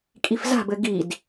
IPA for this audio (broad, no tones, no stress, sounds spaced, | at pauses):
kʼ i f z a̤ b ɘ ɡ i d